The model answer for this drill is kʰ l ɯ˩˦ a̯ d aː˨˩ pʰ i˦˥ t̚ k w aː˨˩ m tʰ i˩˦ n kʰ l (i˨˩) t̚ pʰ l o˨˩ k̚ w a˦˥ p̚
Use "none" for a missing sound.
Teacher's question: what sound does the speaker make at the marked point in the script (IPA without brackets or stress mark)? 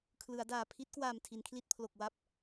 i˥˩